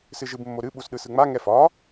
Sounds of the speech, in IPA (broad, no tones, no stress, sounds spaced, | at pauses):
s ɨ ʒ ɨ b mː o ɾ ɨ ɓ u s ɗ ɯ s ɯ ŋ͡m a ŋ ɛ f ɒ